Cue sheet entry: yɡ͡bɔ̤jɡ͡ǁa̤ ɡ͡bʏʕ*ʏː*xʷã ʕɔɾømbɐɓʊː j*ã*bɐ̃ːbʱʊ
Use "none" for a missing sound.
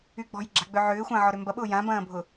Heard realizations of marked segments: ʏː, ã

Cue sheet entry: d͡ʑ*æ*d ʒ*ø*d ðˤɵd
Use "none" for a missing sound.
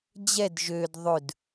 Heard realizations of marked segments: ɛ, ø

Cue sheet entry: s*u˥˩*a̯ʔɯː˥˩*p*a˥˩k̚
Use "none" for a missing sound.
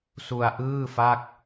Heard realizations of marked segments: u˧, f

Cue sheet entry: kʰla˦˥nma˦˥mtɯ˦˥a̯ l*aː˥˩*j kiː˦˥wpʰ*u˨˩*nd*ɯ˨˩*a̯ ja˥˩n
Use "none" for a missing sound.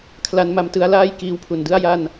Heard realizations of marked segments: aː˥˩, u˨˩, ɯ˥˩

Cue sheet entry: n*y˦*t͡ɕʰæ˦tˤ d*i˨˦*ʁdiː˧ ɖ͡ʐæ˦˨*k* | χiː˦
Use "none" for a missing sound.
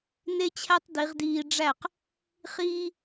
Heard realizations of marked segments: e˦, i˨˦, q

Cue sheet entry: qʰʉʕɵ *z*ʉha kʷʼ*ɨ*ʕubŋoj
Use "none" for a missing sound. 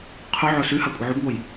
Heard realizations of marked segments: s, ɨ

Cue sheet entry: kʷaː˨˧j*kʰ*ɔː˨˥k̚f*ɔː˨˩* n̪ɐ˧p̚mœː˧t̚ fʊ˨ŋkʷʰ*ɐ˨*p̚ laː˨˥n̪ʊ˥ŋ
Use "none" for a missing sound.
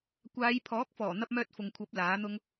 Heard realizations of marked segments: pʰ, ɔː˨˩, ɐ˨˥

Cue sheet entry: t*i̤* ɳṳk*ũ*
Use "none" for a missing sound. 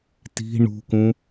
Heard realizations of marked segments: i̤, ũ

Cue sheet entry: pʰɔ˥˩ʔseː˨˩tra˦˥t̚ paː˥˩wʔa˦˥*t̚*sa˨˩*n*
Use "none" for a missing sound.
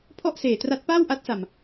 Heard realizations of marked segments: t̚, m

